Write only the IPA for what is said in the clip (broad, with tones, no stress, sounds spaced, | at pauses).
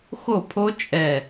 x o˥˨ pʰ o˦˥ t͡ʃʼ ɛ˧˩